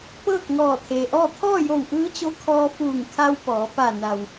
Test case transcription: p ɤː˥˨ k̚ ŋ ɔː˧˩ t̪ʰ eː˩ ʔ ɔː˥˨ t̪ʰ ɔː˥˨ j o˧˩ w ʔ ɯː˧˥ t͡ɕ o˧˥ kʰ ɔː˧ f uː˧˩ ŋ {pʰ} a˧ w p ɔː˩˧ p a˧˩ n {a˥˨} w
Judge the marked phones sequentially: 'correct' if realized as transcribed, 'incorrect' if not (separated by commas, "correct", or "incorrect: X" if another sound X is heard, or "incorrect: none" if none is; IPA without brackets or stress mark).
incorrect: kʰ, incorrect: a˩